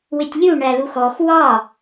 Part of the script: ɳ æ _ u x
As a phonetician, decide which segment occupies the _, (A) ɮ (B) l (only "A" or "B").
B